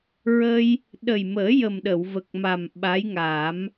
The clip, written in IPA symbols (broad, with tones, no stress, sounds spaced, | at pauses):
ɹ ə˧ j | ɗ ə˨˩ j m əː˨˩˦ j ə˨˩ m ɗ ə˨˩˨ w v ə˨˩ k̚ m a˨˩ m ɓ a˧˥ j ŋ aː˨˩˦ m